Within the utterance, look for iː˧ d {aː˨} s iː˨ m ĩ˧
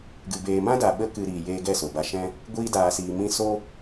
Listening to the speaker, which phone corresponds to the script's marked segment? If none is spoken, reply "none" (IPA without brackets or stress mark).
aː˨